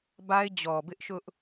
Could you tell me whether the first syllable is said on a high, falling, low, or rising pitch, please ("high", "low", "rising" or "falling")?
high